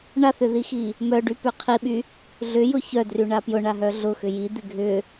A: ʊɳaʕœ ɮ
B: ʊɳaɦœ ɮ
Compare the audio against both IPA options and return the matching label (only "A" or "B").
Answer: B